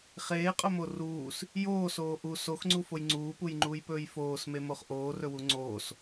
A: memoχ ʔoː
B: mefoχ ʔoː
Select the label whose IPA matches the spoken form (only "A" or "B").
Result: A